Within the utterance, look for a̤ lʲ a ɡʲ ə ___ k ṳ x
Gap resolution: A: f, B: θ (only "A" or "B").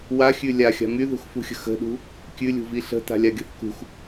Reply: B